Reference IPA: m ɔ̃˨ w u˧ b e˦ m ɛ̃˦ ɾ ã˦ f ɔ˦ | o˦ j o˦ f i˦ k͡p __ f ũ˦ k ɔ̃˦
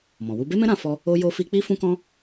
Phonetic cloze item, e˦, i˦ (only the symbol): i˦